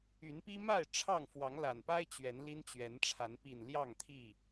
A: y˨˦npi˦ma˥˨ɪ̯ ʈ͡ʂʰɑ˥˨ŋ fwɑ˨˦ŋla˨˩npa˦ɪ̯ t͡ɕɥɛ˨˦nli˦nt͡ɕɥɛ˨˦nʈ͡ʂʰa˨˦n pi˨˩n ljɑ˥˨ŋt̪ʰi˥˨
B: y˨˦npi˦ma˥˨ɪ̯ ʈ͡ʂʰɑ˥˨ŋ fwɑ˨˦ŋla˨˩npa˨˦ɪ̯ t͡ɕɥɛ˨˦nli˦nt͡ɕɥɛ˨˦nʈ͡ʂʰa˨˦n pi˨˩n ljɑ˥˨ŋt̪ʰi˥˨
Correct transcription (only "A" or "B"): A